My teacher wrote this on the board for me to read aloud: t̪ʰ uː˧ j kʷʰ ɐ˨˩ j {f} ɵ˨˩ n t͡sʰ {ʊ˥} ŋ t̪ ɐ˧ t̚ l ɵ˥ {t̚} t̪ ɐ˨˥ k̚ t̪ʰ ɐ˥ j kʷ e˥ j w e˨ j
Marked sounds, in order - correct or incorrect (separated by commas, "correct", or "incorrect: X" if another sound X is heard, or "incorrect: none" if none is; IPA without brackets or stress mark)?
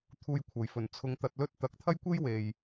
correct, incorrect: ʊ˧, correct